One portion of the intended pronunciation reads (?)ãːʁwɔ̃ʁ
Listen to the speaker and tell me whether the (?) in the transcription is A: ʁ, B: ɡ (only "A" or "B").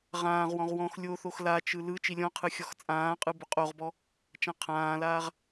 A